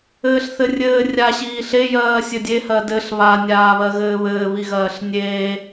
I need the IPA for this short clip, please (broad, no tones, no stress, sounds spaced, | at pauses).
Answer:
ɘː ɬ θ ɘ rʲ ɘː rʲ a ɕ iː ɬ e j ɜː sʲ ɘ dʲ e h ɜ d ɘ ɬ β a nʲ aː β ɜ ɣ ɘː β ɘː β i ɣ ɜː ɬ nʲ eː